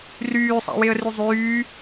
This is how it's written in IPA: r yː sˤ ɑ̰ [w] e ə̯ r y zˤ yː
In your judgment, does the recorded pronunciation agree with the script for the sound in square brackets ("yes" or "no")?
yes